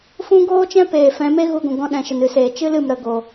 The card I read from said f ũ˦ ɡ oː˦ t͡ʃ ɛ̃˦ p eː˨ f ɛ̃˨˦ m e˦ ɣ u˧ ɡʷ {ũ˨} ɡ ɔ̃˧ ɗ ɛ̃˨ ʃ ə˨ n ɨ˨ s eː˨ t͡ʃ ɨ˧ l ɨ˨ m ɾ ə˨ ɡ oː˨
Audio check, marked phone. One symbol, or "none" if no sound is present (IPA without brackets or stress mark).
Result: ũ˨